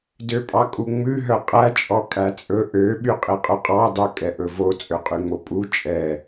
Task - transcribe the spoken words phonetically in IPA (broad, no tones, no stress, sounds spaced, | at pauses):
d ø pʼ ɑ kʼ u ŋ͡m ʉ ɦ œ qʼ æ t͡ʃʼ ɔ kʼ æ t͡sʼ ɵ ʔ ø ɓ y qʼ i qʼ ɵ qʼ ɑ dˤ u kʼ ɛ ʔ ɵ v o t͡sʼ ø qʼ y ŋ͡m o pʼ u t͡ʃʼ ɛ